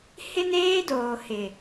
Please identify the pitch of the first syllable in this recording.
high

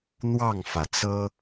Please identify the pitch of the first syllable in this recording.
falling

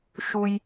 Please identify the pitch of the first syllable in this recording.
high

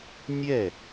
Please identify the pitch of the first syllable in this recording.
falling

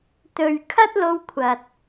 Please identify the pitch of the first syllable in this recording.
low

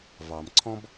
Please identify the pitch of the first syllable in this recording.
low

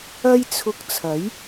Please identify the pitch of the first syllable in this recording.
high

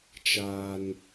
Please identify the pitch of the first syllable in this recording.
low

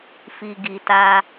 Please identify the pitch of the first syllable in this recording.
low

